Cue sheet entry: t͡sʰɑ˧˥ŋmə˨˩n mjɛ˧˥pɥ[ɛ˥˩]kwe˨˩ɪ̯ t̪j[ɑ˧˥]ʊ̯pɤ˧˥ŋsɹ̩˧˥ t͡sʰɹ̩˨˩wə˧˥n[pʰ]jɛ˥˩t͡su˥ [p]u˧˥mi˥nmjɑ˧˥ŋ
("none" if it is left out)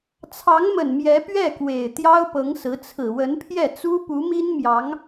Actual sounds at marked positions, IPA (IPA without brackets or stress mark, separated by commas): ɛ˥˩, ɑ˥, pʰ, p